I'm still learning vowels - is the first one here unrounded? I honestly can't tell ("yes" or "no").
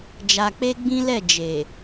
yes